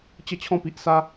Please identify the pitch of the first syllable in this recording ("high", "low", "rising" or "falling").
falling